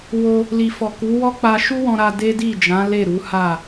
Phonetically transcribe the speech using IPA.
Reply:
w o˧ | l i˨ f ɔ˨ k u˨˦ w ɔ˦ k͡p a˧ ʃ u˦ w ɔ̃˧ ɾ a˧ d e˦ d i˦˨ d͡ʒ ã˨˦ l e˦˨ ɾ u˨˦ h a˦˨

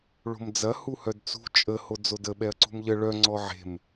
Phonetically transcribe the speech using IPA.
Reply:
ɭ o̤ m d͡z ɐ h u h œ d t͡s ṳ t͡ʃʼ ə h o d͡z o d ə ɓ ɛ ɐ̯ ǀ ṳ m ʎ ə ɭ œ ŋ͡ǀ ɔ ʕ e̤ m

